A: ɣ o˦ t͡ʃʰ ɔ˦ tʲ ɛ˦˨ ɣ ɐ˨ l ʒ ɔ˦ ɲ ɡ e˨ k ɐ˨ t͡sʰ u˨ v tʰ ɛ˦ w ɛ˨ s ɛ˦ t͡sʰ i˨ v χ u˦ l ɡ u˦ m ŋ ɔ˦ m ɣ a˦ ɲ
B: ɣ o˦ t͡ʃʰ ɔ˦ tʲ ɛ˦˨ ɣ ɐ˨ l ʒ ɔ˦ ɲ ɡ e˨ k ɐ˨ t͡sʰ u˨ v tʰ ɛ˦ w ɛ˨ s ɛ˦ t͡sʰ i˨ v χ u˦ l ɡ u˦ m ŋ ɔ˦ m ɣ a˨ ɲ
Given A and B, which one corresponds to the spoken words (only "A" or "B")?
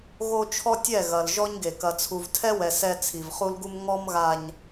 B